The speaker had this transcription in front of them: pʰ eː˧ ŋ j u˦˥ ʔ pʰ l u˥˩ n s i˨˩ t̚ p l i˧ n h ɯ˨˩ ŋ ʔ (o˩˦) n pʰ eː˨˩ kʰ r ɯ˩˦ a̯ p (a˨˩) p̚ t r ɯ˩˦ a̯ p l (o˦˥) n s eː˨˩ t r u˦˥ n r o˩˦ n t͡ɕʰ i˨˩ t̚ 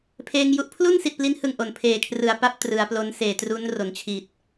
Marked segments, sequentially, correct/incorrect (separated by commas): correct, incorrect, correct